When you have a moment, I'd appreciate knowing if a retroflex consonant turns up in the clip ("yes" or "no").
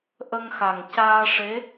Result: yes